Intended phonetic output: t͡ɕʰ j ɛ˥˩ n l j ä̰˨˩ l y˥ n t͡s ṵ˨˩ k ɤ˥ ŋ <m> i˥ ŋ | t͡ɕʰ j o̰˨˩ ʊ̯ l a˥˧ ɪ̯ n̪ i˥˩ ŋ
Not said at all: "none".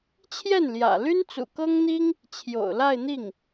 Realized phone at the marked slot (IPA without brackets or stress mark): n̪